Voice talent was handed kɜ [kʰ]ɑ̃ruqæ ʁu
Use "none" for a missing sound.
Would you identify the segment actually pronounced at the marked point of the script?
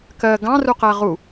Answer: ɡ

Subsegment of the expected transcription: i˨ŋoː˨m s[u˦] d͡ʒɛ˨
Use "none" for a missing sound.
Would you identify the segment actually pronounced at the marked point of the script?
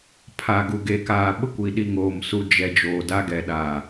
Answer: u˨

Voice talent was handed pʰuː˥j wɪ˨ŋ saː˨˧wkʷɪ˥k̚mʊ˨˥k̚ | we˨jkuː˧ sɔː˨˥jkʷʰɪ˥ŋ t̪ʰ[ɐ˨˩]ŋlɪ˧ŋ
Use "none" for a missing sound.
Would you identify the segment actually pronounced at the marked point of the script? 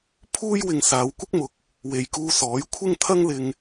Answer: ɐ˥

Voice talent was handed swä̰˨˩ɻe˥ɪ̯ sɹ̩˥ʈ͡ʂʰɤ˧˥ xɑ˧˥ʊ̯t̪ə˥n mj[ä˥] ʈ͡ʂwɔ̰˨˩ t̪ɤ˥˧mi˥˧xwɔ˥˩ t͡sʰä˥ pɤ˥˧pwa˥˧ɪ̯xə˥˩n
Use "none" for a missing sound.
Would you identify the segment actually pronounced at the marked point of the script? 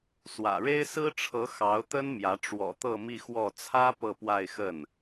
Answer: ä˧˥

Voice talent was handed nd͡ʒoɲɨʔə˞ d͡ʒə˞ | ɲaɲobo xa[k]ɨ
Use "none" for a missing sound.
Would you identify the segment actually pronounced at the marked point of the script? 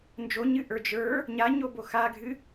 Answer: ɡʱ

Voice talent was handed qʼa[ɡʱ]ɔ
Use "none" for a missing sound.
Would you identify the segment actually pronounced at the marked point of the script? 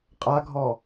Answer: ɡʱ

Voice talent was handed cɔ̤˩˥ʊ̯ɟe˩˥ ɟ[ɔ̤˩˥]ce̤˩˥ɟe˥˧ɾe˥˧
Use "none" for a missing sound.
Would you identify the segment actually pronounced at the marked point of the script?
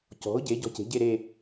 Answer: ɔ̤˧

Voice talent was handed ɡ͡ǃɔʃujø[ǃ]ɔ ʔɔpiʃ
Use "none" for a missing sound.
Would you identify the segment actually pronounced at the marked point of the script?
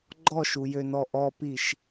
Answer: n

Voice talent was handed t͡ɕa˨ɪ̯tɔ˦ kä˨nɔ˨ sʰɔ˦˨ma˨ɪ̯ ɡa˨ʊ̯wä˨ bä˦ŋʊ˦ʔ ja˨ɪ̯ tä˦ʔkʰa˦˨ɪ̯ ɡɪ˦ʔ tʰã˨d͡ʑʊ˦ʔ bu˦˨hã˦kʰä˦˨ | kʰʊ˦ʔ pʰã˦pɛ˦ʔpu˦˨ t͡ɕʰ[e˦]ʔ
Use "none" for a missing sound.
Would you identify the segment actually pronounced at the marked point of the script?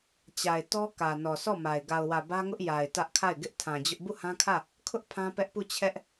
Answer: ɛ˦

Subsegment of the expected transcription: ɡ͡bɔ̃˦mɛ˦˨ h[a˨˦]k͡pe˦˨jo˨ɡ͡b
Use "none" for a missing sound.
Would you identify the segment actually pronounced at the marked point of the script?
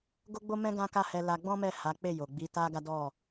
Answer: a˨˦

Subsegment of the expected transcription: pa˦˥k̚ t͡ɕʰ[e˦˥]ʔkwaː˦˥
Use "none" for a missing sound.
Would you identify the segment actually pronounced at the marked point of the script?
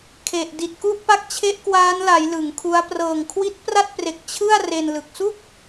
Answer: e˦˥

